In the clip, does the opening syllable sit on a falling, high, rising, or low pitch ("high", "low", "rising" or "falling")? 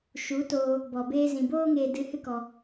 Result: rising